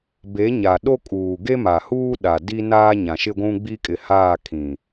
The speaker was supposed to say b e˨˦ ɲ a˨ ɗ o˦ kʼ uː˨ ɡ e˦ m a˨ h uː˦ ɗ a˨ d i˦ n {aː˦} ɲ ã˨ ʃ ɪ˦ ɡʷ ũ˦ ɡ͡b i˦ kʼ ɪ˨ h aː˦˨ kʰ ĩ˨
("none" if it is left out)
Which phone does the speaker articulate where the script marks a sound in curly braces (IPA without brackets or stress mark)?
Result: aː˦